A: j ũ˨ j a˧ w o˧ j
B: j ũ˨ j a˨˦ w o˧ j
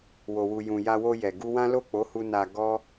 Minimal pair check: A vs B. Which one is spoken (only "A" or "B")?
A